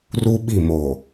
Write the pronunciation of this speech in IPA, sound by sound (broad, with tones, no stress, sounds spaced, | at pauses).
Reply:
r u˦ ɓ i˦˨ m o˨